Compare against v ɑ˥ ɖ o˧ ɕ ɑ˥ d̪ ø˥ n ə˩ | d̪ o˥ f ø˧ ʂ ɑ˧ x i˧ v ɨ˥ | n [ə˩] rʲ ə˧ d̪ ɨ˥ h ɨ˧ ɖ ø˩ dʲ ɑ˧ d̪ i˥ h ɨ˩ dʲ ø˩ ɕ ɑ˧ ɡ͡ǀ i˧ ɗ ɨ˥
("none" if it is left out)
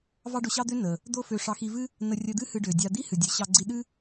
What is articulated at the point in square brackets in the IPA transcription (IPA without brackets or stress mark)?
ə˧